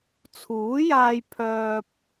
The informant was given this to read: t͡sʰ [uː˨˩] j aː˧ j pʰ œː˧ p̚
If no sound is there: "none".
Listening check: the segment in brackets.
uː˨˥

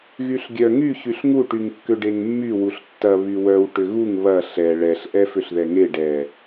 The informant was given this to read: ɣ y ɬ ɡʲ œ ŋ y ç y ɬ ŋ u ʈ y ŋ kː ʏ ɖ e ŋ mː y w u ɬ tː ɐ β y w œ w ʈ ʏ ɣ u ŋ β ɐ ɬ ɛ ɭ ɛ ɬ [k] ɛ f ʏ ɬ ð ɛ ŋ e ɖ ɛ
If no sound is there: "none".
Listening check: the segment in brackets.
ʔ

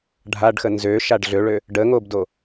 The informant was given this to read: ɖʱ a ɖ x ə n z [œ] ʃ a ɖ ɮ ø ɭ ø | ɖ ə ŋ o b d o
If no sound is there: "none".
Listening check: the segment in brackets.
ø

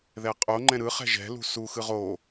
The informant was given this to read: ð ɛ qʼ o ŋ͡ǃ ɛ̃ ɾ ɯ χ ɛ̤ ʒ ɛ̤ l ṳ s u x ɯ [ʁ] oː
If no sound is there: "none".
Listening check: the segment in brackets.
ʁ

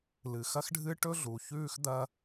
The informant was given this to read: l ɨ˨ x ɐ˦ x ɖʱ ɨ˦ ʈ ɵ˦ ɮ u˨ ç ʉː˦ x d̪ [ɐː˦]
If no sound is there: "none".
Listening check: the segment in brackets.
ɐː˦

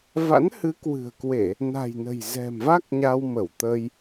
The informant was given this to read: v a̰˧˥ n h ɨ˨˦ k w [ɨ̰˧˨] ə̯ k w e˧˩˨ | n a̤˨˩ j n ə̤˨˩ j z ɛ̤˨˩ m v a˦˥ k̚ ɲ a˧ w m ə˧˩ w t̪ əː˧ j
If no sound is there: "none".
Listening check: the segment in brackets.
ɨ̤˨˩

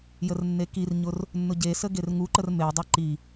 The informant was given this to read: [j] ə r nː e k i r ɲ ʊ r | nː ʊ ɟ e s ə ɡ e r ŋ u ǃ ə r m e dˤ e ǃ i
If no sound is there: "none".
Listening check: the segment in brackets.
j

